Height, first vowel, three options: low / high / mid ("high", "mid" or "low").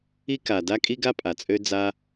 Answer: high